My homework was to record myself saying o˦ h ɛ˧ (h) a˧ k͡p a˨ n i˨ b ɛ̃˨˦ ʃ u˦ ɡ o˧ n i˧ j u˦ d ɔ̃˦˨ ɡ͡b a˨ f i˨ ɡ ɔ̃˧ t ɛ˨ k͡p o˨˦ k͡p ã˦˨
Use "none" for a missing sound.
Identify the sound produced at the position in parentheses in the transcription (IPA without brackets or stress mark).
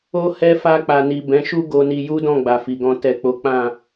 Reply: f